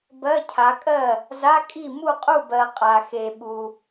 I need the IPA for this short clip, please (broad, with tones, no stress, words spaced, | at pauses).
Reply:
bɜ˧˥˧cʰa˨˥kʼɜ˥˩ | za˧˥˧kʼi˥˩ mu˥˩qʼu˥˩bɜ˨ qʼa˨xe˨ɓu˨